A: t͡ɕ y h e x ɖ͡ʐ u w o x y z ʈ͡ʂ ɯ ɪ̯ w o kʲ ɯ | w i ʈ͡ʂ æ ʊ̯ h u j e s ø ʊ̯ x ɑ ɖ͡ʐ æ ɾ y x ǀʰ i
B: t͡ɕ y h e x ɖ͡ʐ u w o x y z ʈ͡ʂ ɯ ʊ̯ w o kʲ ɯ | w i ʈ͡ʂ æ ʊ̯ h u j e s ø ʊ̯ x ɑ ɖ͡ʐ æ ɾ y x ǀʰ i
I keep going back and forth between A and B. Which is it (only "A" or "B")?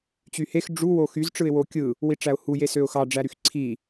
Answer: A